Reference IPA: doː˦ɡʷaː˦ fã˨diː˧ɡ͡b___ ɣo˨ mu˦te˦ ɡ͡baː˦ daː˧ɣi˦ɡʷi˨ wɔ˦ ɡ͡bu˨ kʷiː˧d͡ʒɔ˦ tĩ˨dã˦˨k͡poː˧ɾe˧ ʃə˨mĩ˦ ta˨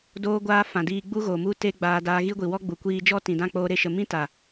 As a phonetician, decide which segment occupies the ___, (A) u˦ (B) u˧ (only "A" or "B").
A